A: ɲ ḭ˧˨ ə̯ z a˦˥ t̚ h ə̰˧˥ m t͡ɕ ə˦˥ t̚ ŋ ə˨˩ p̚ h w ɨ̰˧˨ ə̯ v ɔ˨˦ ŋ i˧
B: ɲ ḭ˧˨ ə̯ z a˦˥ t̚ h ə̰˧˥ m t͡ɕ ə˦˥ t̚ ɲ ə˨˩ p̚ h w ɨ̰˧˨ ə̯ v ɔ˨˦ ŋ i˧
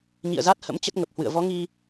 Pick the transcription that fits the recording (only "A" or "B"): A